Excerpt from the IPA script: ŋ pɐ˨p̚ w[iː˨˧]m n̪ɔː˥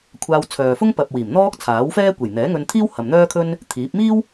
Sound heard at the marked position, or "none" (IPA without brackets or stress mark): iː˨˩